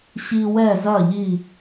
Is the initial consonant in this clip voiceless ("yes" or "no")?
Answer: yes